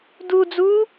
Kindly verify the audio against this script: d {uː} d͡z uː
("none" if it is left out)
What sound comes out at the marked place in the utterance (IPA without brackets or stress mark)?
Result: u